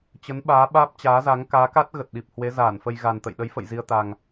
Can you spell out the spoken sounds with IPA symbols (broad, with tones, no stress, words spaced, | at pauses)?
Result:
t͡ɕə˨˦nɓaː˨˦ ɓaː˦˥p̚t͡ɕaː˨˦za˨˦ŋ kaː˨˦ka˦˥t̚ɣə˨˩t̚ ɗi˨˩p̚hwe˨˦zaː˧˩nfə˧j ɣa˨˩nt̪ə̰˧˨j ɗə˨˦jfə̰˧˨j zi˧ə̯t̪a˨˩ŋ